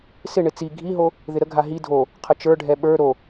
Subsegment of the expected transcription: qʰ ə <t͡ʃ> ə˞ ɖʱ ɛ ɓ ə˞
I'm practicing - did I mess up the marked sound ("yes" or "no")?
no